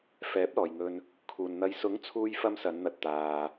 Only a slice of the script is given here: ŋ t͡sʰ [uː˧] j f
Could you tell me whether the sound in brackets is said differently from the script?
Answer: no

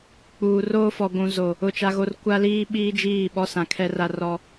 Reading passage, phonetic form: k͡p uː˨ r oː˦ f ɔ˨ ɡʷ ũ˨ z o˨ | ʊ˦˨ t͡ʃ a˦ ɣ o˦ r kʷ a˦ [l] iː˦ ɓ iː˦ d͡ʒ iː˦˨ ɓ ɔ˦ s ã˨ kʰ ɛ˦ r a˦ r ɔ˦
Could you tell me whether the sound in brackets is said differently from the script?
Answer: no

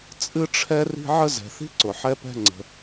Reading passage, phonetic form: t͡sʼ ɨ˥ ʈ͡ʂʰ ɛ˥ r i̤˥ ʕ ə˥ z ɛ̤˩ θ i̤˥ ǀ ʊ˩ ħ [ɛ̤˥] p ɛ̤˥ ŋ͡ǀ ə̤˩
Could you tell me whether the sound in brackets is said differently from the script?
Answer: yes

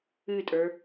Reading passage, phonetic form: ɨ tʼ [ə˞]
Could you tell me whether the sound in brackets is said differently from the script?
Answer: no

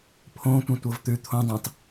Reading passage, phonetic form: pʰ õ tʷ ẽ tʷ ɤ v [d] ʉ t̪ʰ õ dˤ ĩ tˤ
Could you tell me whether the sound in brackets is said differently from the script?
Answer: yes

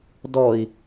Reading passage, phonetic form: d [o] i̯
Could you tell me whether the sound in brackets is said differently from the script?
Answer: yes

